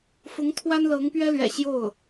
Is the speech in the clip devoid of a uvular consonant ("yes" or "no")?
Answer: yes